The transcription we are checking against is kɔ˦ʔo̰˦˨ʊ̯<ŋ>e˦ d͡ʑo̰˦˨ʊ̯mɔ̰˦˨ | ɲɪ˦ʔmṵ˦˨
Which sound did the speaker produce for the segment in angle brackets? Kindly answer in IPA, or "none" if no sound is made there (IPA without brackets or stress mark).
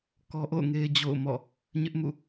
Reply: ŋ